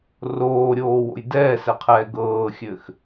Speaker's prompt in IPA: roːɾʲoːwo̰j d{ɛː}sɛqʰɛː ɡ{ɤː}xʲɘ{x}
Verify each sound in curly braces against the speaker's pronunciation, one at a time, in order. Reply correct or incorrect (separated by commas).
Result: correct, correct, correct